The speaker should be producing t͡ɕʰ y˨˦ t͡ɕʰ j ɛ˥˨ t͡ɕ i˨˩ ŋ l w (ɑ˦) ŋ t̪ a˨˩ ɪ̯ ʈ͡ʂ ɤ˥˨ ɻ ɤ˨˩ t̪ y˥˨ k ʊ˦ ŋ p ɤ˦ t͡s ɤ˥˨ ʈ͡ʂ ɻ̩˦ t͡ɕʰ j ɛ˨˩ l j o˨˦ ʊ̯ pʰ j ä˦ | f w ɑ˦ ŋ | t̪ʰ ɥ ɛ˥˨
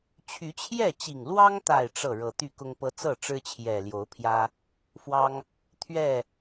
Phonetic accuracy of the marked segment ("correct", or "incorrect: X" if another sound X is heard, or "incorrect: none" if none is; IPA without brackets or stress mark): correct